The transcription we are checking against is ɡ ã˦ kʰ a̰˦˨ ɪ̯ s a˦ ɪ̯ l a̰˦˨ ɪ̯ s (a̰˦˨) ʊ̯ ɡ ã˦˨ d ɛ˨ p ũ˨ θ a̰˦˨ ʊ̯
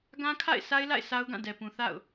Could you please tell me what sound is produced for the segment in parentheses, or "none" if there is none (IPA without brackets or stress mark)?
a˦